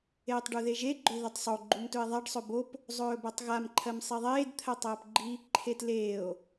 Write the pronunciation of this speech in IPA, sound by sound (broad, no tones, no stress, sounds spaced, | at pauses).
eː tˤ ɖ u ð e ʒ e ɡ͡ǃ ɵ ð ɵ tˤ sˤ o ɡ͡ǃ u m t ɵ e̯ ðˤ a ɖ sˤ ɵ b o p | zˤ ɵː b ɜ tˤ ɣ a m ǃʰ ɜ m sˤ e ðˤ eː d t̪ʰ ɜ tˤ ɜː p ɡ͡ǃ i | ǃʰ e t l eː o̯